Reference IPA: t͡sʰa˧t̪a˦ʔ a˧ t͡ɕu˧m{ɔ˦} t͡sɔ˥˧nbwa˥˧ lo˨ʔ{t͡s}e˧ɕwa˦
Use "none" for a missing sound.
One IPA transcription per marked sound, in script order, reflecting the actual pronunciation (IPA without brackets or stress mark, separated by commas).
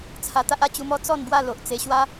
ɔ˦, t͡s